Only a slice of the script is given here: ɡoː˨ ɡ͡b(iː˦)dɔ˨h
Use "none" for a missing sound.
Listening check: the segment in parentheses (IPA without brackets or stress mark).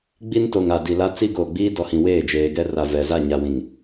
iː˦